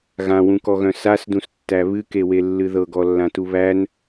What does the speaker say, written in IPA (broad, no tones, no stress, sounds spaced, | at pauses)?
ɣ ã w ũ k ɔ ɣ œ̃ s a s d ũ s tː æ β ɨ k e w e lː ɨ ð ɤ ɡ ɔ lː ã t u β æ n